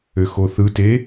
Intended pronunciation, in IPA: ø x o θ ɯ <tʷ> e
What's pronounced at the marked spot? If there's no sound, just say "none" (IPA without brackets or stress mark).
t